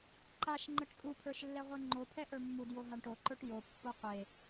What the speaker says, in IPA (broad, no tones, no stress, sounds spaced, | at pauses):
ǃ a ʃ ŋ͡ǃ ə ʈ kʼ u pʰ ə˞ ʃ lː ɛ ʁʷ ɛ ŋ͡ǃ o pʰ ɛ ʔ ə˞ mː u d j o ɦ a ɳ ʈ o ǃ ə˞ ʈ j o pː o qʷ e